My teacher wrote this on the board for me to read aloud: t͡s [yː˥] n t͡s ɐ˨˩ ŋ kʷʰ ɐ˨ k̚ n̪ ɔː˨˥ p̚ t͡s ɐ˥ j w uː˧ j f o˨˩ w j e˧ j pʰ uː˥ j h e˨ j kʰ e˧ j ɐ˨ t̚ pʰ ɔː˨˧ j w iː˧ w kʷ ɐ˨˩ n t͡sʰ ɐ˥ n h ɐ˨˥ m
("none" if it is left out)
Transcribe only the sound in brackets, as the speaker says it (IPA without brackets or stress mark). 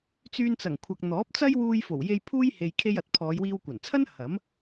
yː˧